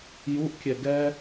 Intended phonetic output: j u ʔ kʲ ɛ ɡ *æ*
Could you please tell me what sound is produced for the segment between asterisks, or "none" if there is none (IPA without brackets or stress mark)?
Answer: ɛ